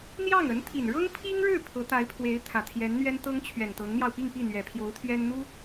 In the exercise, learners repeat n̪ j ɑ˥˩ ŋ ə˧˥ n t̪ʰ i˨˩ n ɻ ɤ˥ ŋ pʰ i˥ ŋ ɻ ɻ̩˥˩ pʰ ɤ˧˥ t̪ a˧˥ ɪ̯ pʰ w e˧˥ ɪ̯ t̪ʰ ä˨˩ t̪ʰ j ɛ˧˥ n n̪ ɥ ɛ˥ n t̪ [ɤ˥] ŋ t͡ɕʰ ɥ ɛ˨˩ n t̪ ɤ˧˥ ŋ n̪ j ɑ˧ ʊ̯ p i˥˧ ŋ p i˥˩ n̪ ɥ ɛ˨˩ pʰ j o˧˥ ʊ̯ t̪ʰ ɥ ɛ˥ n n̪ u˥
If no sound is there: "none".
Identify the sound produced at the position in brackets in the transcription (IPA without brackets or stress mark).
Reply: ɤ˥